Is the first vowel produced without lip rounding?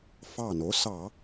yes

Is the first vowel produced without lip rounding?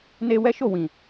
yes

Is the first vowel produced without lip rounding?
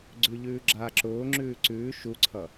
no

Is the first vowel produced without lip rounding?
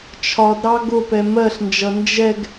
no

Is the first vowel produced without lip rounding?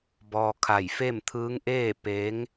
no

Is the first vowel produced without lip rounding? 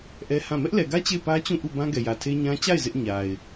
yes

